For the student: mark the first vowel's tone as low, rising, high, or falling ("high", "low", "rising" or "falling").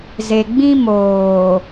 low